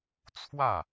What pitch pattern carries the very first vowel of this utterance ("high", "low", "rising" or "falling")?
falling